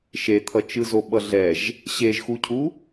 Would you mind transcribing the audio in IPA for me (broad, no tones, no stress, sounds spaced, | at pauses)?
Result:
ʃ e t̪ʰ ʌ t͡ʃ ɯ z o ɓ ʌ ɮ ɛ ʒ | ɕ e ʒ x u cʰ u